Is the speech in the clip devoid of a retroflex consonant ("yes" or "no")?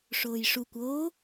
no